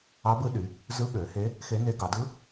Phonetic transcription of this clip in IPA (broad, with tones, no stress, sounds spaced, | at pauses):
ɑ˧˥ b ɯ˧˥ ɗ y˩˧ | z ɯ˧˥ ɠ ø˩˧ h e˧˥ | x e˧˥ n e˧˥ ɡ ɑ˩˧ d ɯ˧˥